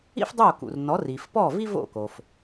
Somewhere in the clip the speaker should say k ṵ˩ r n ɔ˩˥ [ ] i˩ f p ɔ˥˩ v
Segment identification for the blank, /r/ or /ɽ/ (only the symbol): r